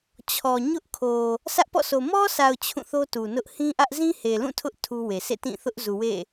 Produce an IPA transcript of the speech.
t͡ɕʰɔ˨ ɲʊ˦ʔkʰo˨ | sʰä˦ʔpɔ̰˦˨sʰo˨ mɔ˦sʰa˨ʊ̯ t͡ɕʰũ˦˨θo˦tu˨nʊ˦ʔ hĩ˦ʔä˦ʔ zĩ˦he˨lũ˦˨ tʰʊ˦ʔ tʰu˦we˨ sḛ˦˨tĩ˦˨θʊ˦ʔzu˨ wḛ˦˨

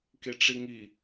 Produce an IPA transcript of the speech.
keʈ͡ʂiŋi

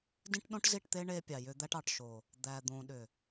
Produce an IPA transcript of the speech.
dĩ˦ʈɗõ˦ʈzi˦˨ʈt̪e˦ ɳe˦pʲɑ˨jʏ˦ d̪æ˦ʈɑ˨ʈ ʃo˨ | d̪æ˨d̪õ˨ɗʏ˨

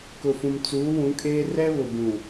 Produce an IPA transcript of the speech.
kʊ˨fũ˨m t͡suː˨˦wũ˨˦kʼeː˦ rɛ˦βʊ˨bũ˨

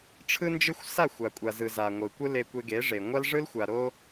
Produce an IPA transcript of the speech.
ʈ͡ʂʰɯ˧nd͡ʒɯ˧xʷ sa˦˨xʷa˨kʷʼa˨zɯ˨ za˨ŋʷɯ˨kʷɯ˦ le˧kʷe˧ɡe˨˦ʐe˨ ŋʷa˧lʐɯ˧lxʷa˨ ɾo˦

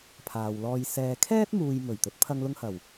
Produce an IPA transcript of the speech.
pʰaː˨wlɔː˧j sɛː˨kʰɛː˥t̚muː˨j mɵ˨˩ɥt̪ɵ˨˥t̚ pʰɐ˧ŋlʊ˧ŋ hɐ˨˩w

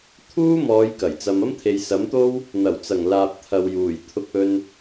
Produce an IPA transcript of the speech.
t̪ʰuː˥ mɔː˨˧j kɐ˨˩jt͡sɐ˧m ɐ˥mt̪ʰe˨jsɐ˨˥mt̪o˥w | n̪ɐ˨˩wt͡sɐ˨˩ŋlaː˨p̚ t̪ʰɐ˨wjuː˨˩j t̪ʰʊ˧k̚ɵ˧n

